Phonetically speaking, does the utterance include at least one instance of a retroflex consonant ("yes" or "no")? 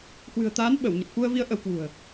no